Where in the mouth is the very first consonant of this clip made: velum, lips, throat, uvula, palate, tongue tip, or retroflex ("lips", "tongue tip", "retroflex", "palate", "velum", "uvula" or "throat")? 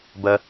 lips